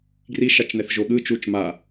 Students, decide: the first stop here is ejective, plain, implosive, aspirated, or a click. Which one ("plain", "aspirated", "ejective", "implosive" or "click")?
plain